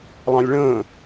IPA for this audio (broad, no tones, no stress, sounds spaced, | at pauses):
lˠ ɑ̃ lʲ ɭ ə̃ː